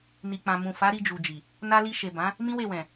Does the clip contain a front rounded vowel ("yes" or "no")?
no